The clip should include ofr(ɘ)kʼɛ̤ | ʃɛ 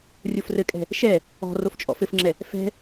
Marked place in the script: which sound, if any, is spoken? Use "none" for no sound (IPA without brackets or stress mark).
ɘ